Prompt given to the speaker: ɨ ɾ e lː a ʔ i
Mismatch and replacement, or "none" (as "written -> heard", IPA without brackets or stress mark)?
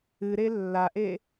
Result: i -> e